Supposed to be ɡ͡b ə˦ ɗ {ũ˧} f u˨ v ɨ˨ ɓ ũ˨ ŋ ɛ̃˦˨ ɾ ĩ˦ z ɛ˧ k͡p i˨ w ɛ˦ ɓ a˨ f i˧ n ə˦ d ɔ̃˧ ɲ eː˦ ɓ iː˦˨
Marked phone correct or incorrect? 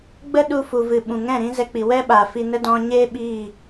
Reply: incorrect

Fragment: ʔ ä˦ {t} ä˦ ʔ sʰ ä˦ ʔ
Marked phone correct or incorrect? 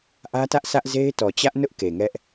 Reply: correct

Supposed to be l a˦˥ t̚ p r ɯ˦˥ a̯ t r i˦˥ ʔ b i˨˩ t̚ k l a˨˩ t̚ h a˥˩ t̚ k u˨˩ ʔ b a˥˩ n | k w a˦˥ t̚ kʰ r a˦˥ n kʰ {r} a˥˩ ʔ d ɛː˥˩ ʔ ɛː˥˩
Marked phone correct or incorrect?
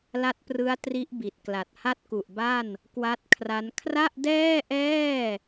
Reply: correct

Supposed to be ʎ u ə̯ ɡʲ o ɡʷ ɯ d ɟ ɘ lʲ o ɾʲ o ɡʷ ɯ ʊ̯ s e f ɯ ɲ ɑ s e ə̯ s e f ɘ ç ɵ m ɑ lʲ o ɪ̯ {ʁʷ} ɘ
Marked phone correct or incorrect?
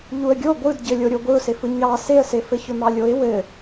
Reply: incorrect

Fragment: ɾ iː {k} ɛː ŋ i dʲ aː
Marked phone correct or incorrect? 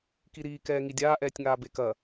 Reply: correct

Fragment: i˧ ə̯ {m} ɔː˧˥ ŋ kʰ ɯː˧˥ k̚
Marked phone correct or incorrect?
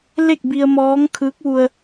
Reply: correct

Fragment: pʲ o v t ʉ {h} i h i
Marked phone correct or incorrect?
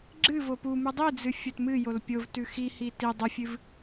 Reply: incorrect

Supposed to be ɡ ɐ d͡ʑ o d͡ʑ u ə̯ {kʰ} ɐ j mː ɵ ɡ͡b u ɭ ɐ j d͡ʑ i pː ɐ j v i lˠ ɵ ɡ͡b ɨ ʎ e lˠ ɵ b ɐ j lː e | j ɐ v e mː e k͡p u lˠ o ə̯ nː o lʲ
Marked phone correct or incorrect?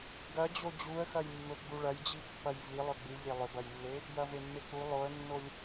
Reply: incorrect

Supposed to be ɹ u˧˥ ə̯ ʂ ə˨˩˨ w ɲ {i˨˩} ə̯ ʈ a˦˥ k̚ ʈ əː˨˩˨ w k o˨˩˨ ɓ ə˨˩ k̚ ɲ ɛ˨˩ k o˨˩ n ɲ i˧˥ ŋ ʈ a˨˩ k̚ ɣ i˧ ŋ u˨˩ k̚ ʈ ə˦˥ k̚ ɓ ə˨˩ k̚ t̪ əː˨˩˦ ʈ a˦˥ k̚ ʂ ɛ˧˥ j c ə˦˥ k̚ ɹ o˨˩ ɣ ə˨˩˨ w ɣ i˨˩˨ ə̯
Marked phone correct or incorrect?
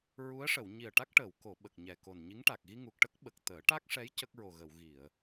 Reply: correct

